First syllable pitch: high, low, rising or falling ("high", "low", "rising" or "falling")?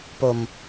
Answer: low